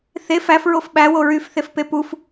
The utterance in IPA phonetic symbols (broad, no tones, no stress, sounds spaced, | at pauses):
θ e f æ f ɹ o f ɓ æ w o ɹ y f θ e f p e p u f